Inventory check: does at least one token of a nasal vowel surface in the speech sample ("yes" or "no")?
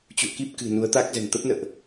no